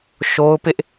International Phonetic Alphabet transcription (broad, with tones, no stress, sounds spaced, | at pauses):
ʃ o˦ ʊ̯ p ɪ˦ ʔ